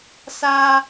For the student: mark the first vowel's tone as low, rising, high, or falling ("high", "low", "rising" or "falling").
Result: high